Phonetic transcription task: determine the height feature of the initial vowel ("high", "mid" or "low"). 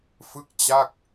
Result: high